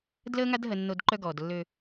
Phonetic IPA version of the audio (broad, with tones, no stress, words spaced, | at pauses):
dləː˦ŋa˦d ɦə˦nːo˦d ǃœ˦ɡɔː˨dlːø˦